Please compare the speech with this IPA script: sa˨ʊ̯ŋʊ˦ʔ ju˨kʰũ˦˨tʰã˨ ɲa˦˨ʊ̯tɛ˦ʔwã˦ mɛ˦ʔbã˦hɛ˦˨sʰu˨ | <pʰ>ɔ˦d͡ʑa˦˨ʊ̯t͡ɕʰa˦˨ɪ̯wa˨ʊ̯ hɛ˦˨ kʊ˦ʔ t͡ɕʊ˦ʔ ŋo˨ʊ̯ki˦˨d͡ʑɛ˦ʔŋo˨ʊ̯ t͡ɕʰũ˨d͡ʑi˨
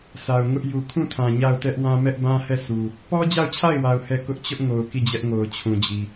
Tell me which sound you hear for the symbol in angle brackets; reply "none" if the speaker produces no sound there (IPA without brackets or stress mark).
p